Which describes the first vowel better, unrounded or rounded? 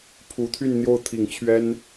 rounded